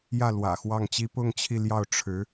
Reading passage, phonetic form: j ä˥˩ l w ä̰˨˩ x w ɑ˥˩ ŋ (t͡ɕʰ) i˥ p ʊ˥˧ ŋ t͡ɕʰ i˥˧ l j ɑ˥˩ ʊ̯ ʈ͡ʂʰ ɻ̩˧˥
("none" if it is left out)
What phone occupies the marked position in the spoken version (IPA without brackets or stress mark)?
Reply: t͡ɕ